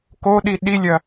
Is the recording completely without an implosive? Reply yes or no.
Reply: no